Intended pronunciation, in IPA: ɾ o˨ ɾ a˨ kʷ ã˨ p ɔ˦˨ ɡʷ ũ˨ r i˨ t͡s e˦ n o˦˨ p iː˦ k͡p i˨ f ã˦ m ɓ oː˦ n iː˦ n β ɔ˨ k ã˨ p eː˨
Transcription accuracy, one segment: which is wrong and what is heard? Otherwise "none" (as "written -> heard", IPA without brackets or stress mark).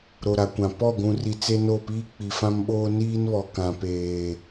none